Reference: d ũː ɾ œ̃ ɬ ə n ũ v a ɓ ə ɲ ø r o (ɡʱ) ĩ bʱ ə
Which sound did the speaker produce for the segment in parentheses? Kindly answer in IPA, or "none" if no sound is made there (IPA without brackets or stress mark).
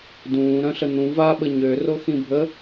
x